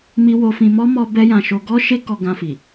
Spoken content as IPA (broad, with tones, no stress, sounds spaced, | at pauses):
m i˦ w o˧ f ĩ˧ m ɔ˦ m ɔ˧ b ɛ˦ j ã˧ ʃ o˧ ɡ ɔ˦ ʃ e˦ k ɔ˧ ɡ ã˧ f i˨